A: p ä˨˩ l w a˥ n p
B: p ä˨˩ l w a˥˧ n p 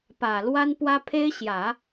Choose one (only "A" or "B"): A